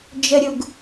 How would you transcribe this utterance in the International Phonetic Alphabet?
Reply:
d͡ʒ ə ɾʲ u ɡ

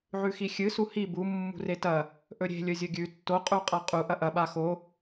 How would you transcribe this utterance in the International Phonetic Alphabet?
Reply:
ʕ ʉ x i xʲ ɨ s u h i b u mː ṳ r e t ɐ | ʔ ɵ ɾʲ e̤ lʲ ɵ zʲ ɵ ɡʲ ʉ tː o qʼ u qʼ a qʼ u ʔ ɐ ʔ ɐ ɓ a x o

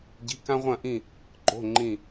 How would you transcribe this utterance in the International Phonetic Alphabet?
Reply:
ɟ i̤˩˧˩ k ã˧ ʁʷ ɐ̃˧˩ ʔ ĩ˧˩ | ǃ o̤˩˧˩ ŋ͡ǃ ĩ˧˩

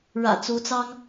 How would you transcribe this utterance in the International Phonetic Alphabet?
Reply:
ɻ ä̰˨˩ t͡s u˨˦ t͡s ɑ˦ ŋ

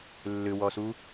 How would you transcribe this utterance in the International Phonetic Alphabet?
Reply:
lː ʏ w ɔ s u

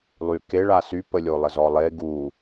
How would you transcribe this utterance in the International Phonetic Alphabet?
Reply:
lˠ y k e ɭ a s y p ə lʲ o lˠ ə z ɔ lˠ e ɡ u

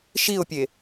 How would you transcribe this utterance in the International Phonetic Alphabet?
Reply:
ʃ i ʊ̯ pʲ e

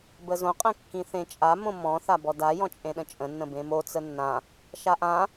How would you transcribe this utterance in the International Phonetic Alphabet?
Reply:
b ə z õ qʼ ə̃ kː ĩ θ ẽ t͡ʃʼ a m õ m ɔ̃ θ a b ɔ d a j ɔ̃ t͡ʃʼ ẽ ɗ ə̃ t͡ʃʼ ə̃ nː ə̃ b ẽ m o t͡s ə nː ã | ʃ a ʔ ã

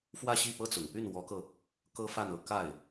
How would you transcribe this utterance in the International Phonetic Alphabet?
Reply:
f w ä˥˧ ɕ i˥˩ p ɤ˥ t͡s ʊ˨˩ ŋ p y˥˩ n w ɔ˧˥ k ɤ˧ | k ɤ˥ f a˥˩ n ɤ˧˥ k a˥˩ ɪ̯

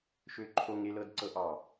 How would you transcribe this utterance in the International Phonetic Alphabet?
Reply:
ʃ ø ǃʰ o ŋ e l ɤ d ǀ ɤ ʔ ɑ

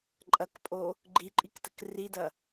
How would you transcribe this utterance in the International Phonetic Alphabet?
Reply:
ǃʼ ɐ k pʼ o | ɡ͡ǃ i ǃʼ i k t ə k r i d ɐ

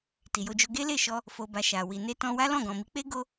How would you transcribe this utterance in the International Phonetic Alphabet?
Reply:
t i˨ j o˧ d͡ʒ o˧ ɡ e˦ l e˦˨ ʃ ɔ˧ | f o˨ b a˨ ʃ a˨ w i˨ n e˧ t ɔ̃˧ w a˦ l ɔ̃˦˨ ɡ ɔ̃˨ m i˨˦ k͡p e˦ ɡ o˦

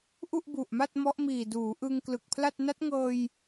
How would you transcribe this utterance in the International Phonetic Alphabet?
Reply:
ʔ u˥˩ ʔ b u˨˩ ʔ m a˥˩ t̚ m ɔ˦˥ ʔ m iː˨˩ d uː˩˦ ʔ ɯ˧ ŋ k l ɯ˨˩ k̚ pʰ l a˥˩ t̚ n a˦˥ t̚ ŋ ɤː˧ j

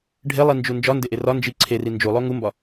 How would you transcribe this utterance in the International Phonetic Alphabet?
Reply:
ɖʱ e lˠ i n d͡ʒ u n d͡ʒ ɒ n d e ʔ e r ɒ n d͡ʒ i ǀʰ e r i n d͡ʒ u lˠ o ŋ u m b ɒ

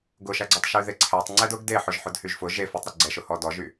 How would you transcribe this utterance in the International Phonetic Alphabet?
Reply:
ɡ ʊ ʃ æ ɡ͡ǀ ɔ tˤ ʃ y ð e ǀʰ æ tˤ ŋ͡ǀ ɛ d ʊ ɡ d e ħ ʊ ʒ ħ ʊ d h y ʒ f ʊ ʒ e f o tˤ ɾ ʊ ɡ͡ǀ ɛ ʃ ʊ h ɔ d ɔ ʒ y

